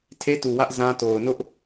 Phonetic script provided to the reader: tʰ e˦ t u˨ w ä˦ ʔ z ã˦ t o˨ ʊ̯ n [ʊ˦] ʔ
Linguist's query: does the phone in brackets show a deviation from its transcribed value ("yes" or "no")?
no